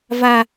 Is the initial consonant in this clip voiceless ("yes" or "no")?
no